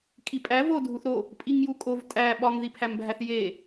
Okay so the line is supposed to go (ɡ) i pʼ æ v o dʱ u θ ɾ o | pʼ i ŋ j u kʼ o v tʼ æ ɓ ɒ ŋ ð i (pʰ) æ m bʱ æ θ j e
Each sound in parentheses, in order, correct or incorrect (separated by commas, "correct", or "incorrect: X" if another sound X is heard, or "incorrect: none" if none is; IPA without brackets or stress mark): incorrect: kʼ, correct